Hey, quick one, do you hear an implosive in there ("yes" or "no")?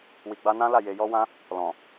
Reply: no